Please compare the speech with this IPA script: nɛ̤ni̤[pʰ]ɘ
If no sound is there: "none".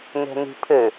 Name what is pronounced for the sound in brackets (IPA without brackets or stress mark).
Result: pʰ